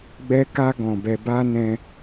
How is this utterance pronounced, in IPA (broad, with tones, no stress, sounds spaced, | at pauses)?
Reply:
ɡ͡b ɛ˧ k a˧ ɡ ɔ̃˨ b ɛ˧ b a˦ n ɛ̃˧